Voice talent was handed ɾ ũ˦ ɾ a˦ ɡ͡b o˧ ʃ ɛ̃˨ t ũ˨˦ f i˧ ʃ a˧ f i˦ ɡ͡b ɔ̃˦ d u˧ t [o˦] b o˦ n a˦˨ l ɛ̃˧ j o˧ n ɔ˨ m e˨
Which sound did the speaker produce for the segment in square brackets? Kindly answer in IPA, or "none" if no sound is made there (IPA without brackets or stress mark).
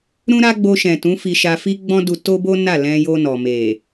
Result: o˦